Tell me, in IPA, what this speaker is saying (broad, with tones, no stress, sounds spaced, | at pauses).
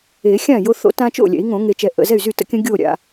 e˨˩˦ xʲ ã˥˩ j o˦ θ o̰˦ t ã˦ t͡ʃ o̰˥˩ lʲ ɛ̰˨˩˦ i̯ ŋ õ˨˩˦ ŋ e˨˩˦ t͡ʃ ɛ˨ ʔ ə̰˨ z ɛ˥˩ y̯ z y˥˩ t ə̰˦ kʲ ə̃˦ ɡʲ o˥˩ ɾʲ a̰˨